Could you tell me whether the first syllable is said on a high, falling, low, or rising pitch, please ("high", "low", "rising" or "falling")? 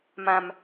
high